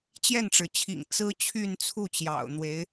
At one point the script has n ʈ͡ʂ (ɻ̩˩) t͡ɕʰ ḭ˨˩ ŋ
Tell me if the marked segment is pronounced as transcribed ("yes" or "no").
yes